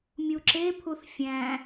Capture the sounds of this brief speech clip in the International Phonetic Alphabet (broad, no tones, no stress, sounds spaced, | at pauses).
mʲ u ǁ e pʰ u θ fʲ æ̃